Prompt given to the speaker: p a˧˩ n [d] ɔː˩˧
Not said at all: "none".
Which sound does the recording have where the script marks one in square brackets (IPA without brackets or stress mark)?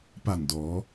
d